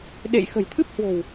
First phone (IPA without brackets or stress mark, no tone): ɗ